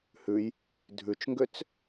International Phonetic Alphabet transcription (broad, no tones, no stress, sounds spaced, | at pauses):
h ʉ j | dʱ ʉ t͡ʃ ŋ ɡ ø t͡s